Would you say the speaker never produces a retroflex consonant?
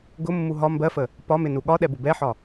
yes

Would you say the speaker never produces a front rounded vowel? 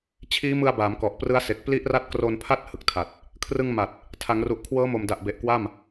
yes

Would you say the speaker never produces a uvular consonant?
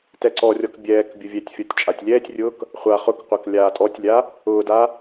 no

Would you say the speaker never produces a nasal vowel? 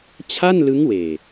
yes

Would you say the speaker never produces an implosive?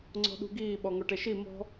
no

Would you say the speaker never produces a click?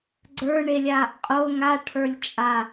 no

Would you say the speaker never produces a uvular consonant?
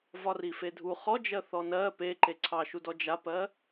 no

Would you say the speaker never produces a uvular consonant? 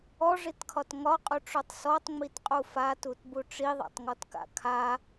no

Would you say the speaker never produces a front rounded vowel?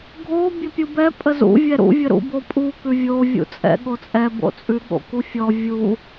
yes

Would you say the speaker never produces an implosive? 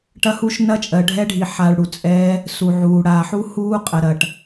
yes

